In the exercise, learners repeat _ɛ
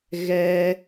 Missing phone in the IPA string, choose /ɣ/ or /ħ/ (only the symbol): ɣ